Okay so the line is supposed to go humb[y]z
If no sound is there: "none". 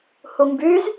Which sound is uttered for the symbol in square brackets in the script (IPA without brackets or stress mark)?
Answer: y